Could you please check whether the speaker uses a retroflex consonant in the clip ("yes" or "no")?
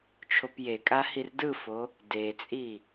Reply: no